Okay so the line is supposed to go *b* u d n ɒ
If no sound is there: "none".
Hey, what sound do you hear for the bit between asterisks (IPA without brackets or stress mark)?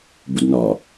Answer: b